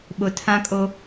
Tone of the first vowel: low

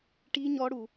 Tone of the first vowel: high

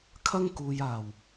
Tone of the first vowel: high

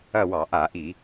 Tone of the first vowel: falling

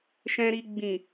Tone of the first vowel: low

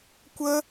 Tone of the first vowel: high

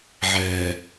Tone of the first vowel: low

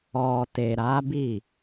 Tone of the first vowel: low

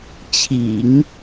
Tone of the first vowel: low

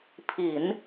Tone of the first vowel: low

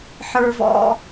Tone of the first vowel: high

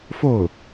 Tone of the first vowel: falling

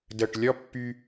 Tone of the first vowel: low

